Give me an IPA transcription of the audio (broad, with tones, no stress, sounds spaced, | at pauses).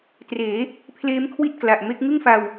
t r eː˩˦ | pʰ l eː˦˥ m kʰ w i˥˩ t̚ k l a˨˩ ʔ m e˦˥ k̚ ŋ ɯ˥˩ ŋ f a˧ w